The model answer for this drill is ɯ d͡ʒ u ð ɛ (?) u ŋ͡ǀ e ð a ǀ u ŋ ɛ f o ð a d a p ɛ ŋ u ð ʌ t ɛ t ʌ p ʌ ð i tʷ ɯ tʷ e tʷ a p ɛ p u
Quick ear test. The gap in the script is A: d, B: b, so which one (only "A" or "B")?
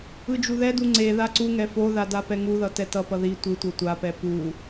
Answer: A